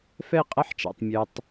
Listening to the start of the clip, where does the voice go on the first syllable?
falling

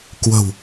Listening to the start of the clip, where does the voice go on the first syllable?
low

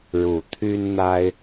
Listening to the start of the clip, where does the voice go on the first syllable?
low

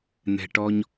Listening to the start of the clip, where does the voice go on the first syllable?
low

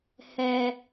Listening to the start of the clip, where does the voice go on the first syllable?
low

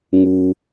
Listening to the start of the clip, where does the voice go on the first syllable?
high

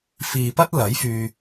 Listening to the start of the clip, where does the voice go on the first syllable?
low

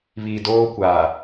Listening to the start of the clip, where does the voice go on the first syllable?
low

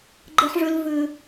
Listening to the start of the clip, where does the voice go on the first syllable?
high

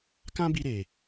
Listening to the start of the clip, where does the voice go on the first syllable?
high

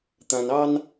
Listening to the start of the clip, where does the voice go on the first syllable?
low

